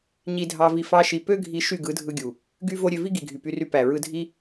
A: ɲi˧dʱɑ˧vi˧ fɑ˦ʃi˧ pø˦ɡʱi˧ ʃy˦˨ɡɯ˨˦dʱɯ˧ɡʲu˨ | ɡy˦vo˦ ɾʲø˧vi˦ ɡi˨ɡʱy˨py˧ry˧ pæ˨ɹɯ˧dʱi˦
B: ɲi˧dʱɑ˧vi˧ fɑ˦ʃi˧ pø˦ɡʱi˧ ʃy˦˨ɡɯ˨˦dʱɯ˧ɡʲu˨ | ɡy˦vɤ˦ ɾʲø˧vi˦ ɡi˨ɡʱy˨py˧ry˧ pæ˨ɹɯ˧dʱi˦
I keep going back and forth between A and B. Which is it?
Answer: A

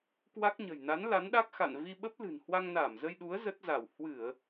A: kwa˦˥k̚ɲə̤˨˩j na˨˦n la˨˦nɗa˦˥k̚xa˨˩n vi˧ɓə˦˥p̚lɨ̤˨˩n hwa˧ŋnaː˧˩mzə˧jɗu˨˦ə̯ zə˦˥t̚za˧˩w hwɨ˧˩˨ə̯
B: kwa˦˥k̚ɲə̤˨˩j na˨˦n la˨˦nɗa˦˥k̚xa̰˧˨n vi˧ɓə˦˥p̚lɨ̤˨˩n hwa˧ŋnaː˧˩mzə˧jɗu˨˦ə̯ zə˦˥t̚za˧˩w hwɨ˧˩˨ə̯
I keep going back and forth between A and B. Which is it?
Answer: B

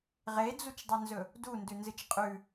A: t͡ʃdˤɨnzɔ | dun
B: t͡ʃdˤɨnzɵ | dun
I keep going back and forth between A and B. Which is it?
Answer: B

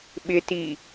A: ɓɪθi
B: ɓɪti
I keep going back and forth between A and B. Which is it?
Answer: B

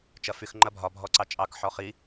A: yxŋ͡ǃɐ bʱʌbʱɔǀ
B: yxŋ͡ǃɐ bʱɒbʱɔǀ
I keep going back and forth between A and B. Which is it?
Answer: B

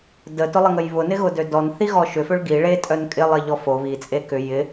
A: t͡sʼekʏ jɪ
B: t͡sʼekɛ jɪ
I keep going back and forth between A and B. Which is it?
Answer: A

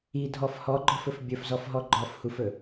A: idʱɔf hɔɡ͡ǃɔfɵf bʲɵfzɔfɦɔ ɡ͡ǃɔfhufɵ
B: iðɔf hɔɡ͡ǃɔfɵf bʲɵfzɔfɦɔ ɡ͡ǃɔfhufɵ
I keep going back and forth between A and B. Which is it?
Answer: A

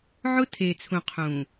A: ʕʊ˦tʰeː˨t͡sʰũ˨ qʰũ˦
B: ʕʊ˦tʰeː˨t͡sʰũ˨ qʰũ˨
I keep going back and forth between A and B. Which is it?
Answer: B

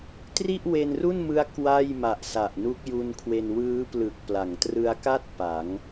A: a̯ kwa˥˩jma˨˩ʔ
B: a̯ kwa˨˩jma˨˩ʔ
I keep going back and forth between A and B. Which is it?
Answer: A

